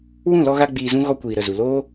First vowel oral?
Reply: no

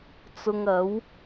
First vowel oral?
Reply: yes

